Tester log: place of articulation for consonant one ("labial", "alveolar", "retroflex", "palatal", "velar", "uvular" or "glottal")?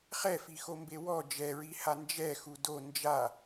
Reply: uvular